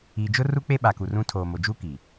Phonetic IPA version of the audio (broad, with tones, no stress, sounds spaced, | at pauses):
iː˨ d͡ʒ ʊ˦ r u˦ k͡p e˦ ɓ a˨ k u˨ r ũ˦ tʰ oː˨ m o˨ d͡ʒ uː˦ k i˨